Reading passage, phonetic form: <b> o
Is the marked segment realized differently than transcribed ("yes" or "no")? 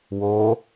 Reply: yes